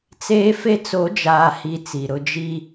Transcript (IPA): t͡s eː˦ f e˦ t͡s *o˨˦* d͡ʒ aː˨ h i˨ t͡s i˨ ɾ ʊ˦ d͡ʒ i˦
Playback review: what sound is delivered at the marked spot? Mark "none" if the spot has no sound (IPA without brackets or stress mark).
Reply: o˨˦